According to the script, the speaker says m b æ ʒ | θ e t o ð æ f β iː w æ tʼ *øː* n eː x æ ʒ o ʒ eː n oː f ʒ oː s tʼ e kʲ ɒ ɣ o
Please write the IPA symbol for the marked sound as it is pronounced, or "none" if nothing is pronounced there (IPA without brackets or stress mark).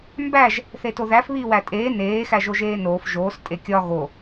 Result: eː